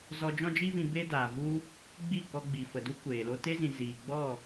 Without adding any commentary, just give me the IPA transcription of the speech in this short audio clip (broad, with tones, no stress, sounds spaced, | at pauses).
z ɔ˧ d͡ʒ ɔ̃˦ d͡ʒ i˦ v ĩ˧ b e˦ d aː˨ v u˦ | ɡ͡b i˦˨ k ɔ˧ ɡ͡b i˨ f ə˨ d u˦ kʷ eː˨ l o˦ t e˦ z ĩ˨ z iː˨ ɡ͡b ɔ˦˨